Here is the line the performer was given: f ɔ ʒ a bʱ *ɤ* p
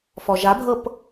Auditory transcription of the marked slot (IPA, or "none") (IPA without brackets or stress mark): ɤ